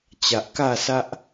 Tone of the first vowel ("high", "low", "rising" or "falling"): low